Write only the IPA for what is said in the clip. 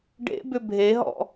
ɖ ḛ b ʏ bʱ e ɦ ɔ̰

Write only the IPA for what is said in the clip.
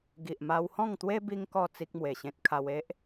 ɡ i˨ ʔ m a˧ w h ɔ̃˥˧ ŋ t̪ w e˦ b i˦ ŋ k ɔ˥˧ t͡s i˦ k̚ m w e˨˩ ɕ ẽ˦ t̚ kʰ a˧ w e˦ ʔ

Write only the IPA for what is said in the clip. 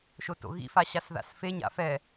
ʃ o t o̰ ɣ ḭ f a ɕ a s ð a̰ s f e ɲ a̰ f ɛ

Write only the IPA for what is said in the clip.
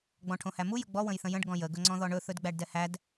ɡ͡b ɔ̃ ʈʰ õ h æ m u j ə ɡ͡b ɔ w ə̃ j θ ə̃ j ə̃ ɖ ɡ ɔ̃ j ə ɡ ɵ ŋ͡ǀ ɔ̃ ð ɔ ɳ ɵ θ ɵ d ɡ͡b æ ɖ d ɛ h æ d

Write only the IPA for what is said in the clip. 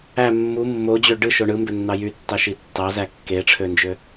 æ mː u mː o d͡ʑ ø ɖ ɯ ʃ o ɳ ɯ m b ø nː ɑ j y tː ɑ ʃ i tː ɑ z æ kː e ʈ͡ʂʰ ø n d͡ʒ ø

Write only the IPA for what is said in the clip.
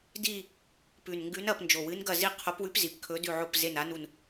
d i˦˨ | p ʉ˨˩ n ŋ ɡ ʉ˧˥ n ɐ˦˨ p n d͡ʒ o˨˩ w ɨ˧˥ n ɡ ɐ˦˨ z i˦˨ qʰ o˧˥ p w ʉ˧˥ p z i˨˩ p kʰ ɵ˧˥ d ʉ˦˨ ʕ o˦˨ p z e˦˨ n a˧˥ n u˦˨ n

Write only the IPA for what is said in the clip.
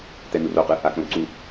t̪ ɛ n̪ u r o q ɯ | a k õ l ǀ u

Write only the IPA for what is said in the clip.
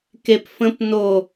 k e p f ə̃ p n o

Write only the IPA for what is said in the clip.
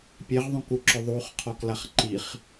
pʲ e ʁ ðˤ ũ k u ǁ ʊ ðˤ u χ qʰ ɔ k l a χ ǃ i χ

